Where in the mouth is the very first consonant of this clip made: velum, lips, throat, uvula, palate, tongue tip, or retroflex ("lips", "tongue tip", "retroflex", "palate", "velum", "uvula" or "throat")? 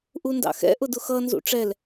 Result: throat